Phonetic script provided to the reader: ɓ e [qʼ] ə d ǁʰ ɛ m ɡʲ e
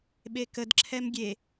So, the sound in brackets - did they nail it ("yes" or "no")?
no